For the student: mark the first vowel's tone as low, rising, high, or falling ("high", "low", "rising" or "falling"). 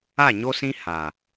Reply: falling